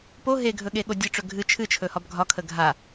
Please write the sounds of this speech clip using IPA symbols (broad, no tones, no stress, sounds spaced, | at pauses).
p o ɦ e ɡʱ ɵ ɠ e ɠ o dʲ ɨ ʈ͡ʂ ɵ ɡʱ ɨ t͡ʃʰ ɨ t͡ʃʰ ɵ h ɒ b ɡʱ ɒ kʰ ə ɡʱ a